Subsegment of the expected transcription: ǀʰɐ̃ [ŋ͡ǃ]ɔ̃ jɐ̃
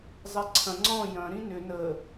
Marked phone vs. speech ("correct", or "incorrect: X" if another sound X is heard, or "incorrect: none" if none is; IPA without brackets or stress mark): incorrect: ŋ͡ǀ